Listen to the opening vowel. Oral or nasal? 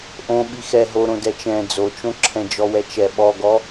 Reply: nasal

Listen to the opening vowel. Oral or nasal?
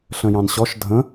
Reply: nasal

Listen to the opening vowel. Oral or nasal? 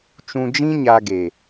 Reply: nasal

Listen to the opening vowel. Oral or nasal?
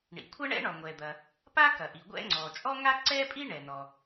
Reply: oral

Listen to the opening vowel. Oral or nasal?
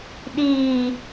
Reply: oral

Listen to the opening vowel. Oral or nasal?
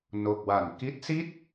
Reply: oral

